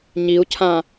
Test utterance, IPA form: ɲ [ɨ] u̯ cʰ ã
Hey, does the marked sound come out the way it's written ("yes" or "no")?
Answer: no